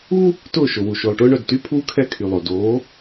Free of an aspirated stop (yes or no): no